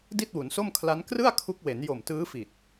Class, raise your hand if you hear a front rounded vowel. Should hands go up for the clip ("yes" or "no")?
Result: no